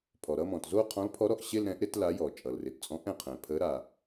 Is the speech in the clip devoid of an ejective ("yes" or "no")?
no